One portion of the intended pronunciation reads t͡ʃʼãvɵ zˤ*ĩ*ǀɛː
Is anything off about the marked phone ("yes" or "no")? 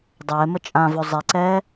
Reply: yes